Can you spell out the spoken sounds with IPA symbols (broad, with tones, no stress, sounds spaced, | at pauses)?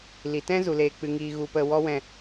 l i˨ t ɛ̃˦ z u˨ l eː˨ k͡p ɨ˨ ŋ iː˨ ɣ u˨ p ə˨ w ɔ˦ w ɛ̃˦˨